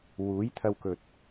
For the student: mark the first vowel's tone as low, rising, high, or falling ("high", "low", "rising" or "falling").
rising